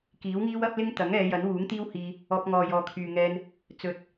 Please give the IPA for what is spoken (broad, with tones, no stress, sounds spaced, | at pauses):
k iː˨˥ w ŋ iː˥ w ɐ˥ p̚ l ɪ˥ ŋ t̪ ɐ˨˥ ŋ ɛː˨˧ j ɐ˨˥ n w uː˨˥ ŋ t̪ iː˥ w h iː˧ | ɔː˧ p̚ ŋ ɔː˨ j ɔː˨ kʰ yː˨ ŋ ɛː˧ n | t͡s ɵ˨˥ t̚